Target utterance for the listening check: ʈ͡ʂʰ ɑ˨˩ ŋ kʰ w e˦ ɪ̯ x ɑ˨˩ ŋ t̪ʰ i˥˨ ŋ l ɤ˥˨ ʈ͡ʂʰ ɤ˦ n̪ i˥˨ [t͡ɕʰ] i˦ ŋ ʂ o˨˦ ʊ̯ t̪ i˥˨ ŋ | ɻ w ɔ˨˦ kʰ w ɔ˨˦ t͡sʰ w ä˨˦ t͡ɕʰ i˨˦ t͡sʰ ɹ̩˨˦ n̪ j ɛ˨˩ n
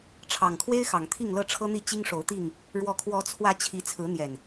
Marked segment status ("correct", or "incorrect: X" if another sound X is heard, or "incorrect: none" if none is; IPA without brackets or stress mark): incorrect: t͡ɕ